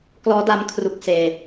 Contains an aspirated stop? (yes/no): yes